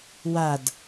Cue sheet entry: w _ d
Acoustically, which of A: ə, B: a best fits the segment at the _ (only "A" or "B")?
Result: B